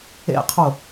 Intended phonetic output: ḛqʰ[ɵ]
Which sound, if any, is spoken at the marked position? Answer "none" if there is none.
o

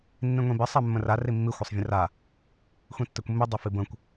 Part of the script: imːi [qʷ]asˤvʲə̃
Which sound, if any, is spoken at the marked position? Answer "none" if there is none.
xʷ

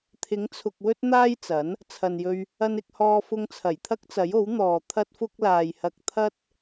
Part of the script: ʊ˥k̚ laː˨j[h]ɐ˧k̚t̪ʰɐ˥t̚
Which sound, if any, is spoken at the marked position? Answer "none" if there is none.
h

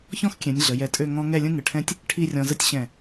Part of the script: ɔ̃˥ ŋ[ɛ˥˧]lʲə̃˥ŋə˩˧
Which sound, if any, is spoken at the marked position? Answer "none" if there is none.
ɛ˥˧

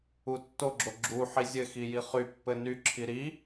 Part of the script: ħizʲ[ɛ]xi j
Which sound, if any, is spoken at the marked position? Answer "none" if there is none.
ɘ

